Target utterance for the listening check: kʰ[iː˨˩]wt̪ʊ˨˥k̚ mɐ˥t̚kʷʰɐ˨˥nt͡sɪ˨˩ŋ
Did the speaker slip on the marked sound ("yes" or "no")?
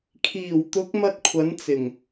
no